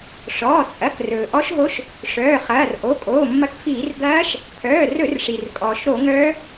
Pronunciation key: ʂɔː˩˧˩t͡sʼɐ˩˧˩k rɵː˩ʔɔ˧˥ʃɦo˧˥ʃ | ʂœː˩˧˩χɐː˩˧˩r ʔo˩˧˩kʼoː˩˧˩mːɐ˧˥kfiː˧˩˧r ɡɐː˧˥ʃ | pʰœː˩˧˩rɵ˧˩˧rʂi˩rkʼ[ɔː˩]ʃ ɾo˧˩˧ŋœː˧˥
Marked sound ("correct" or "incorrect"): correct